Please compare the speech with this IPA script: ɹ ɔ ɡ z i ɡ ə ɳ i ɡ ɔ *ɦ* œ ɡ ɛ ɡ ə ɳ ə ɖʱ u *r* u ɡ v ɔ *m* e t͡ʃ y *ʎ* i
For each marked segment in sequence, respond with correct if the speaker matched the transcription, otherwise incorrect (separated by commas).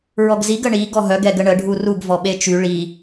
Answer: correct, correct, incorrect, incorrect